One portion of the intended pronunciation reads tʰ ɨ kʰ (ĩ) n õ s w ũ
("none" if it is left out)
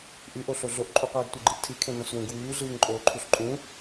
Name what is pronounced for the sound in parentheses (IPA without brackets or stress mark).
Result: ẽ